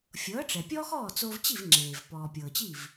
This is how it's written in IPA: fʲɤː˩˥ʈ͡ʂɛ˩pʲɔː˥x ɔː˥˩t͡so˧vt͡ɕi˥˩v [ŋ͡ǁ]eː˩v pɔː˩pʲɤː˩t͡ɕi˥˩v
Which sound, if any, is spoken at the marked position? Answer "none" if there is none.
ŋ͡ǁ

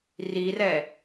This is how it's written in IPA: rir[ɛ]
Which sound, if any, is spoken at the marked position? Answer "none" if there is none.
ɛ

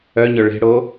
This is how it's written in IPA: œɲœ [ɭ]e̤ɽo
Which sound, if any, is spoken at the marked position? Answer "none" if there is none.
ɭ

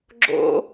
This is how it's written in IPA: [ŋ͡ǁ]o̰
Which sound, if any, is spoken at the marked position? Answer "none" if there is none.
ɡ͡ǁ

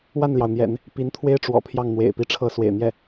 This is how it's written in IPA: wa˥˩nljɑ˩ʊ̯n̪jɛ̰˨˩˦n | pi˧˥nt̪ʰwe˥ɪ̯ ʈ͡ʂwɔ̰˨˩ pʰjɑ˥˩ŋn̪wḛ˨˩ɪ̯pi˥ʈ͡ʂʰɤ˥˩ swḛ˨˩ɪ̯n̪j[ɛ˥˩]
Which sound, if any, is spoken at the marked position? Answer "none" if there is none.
ɛ˥˩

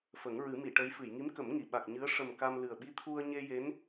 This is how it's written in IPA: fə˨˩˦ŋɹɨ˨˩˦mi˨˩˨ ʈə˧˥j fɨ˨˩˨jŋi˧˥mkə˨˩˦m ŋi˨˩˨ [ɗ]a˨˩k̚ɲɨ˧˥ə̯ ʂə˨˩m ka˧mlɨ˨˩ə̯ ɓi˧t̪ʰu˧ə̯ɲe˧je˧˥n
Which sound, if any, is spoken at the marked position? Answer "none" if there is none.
ɓ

